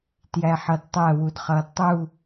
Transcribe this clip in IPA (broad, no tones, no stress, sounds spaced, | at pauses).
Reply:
t j æ ħ ʌ d tˤ æ w u d χ ʌː d tˤ u